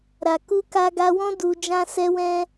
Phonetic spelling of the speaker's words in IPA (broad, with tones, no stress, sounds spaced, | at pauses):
ɾ a˨ k u˧ k a˧ ɡ a˧ w ɔ̃˦ d u˧ d͡ʒ ã˦ s ɛ˦ w ɛ̃˦